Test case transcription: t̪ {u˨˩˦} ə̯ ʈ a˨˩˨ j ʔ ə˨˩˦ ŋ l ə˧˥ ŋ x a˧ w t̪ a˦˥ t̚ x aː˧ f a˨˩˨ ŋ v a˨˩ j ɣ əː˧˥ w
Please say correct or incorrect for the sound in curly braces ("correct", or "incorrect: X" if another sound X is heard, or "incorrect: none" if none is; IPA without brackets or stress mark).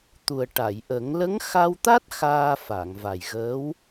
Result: incorrect: u˨˩